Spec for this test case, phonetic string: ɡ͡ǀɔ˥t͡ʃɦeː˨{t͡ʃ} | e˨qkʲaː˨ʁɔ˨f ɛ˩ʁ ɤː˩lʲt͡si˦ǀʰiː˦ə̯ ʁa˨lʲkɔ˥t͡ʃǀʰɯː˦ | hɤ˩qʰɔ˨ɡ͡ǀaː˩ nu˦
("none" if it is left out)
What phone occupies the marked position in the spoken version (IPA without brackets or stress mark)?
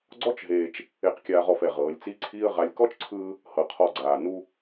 t͡ʃ